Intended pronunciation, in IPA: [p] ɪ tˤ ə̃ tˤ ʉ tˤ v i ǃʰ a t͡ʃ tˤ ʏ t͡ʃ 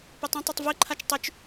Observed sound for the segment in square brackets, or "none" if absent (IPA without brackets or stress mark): p